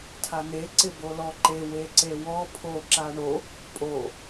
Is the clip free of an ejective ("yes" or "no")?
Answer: no